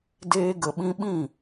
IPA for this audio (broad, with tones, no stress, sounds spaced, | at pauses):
d eː˧ ɡ ə˨ ɓ ĩ˧ ɓ ĩ˦˨